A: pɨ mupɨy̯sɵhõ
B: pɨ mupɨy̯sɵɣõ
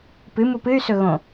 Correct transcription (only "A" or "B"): B